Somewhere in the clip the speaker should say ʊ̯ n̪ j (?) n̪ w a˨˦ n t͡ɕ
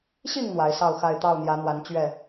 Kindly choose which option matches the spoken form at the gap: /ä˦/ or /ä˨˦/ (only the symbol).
ä˨˦